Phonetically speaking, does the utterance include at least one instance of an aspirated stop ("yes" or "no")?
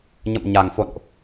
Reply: no